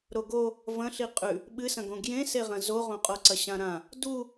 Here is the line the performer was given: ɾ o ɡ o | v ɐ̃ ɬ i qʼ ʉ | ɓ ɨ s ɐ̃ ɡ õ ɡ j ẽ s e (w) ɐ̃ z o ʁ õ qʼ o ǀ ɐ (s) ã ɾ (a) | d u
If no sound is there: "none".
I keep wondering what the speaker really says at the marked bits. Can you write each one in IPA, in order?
ʁ, ɕ, ã

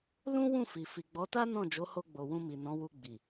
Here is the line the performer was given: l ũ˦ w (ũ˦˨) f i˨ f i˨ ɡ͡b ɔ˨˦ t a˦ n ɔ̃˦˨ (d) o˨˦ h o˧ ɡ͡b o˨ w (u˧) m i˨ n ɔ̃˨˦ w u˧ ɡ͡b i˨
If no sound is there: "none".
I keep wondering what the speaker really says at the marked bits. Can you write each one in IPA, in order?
ũ˦˨, d͡ʒ, ũ˧

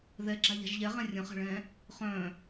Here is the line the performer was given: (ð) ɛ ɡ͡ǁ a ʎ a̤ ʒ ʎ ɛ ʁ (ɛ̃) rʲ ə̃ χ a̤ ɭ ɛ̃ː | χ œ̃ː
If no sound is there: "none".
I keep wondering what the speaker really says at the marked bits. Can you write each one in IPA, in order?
ð, ɛ̃

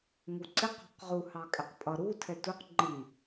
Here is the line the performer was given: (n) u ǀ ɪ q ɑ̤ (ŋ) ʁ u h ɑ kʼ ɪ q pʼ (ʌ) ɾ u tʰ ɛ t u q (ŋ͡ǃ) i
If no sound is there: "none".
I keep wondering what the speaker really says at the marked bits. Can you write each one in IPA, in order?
ŋ, q, ʌ, ŋ͡ǃ

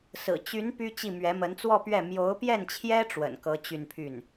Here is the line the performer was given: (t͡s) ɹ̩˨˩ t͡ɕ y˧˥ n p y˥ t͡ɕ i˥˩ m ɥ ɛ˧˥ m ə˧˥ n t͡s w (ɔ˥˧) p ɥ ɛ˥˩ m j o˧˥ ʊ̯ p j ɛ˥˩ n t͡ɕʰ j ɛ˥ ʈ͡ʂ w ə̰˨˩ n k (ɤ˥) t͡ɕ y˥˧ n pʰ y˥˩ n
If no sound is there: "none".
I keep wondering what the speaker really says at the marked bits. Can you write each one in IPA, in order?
s, ɔ˥˧, ɤ˧˥

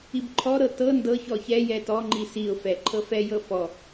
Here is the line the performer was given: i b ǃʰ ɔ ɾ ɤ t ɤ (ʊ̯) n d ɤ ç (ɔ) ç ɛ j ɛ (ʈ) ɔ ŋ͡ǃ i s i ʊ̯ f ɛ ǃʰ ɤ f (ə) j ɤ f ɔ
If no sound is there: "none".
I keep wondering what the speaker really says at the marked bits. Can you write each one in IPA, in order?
none, ɔ, t, ɛ

